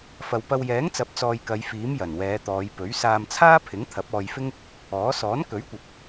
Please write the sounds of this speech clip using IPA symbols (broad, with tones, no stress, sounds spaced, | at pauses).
f ɐ˨ w p ɐ˧ w j ɛː˨˥ ŋ t͡s ɐ˨˥ p̚ t͡s ɔː˧ j k ɐ˨˧ j f iː˨˥ m j ɐ˨˩ n w ɛː˨˧ t̪ ɔː˨˧ j p ɵ˨˥ ɥ s aː˧ m t͡sʰ aː˥ pʰ ɪ˨˥ ŋ t̪ʰ ɐ˨˥ p̚ ɔː˧ j f ɪ˥ ŋ | ɔː˨˥ s ɔː˨˥ n k ɵ˨˥ ɥ kʷ ɐ˨ p̚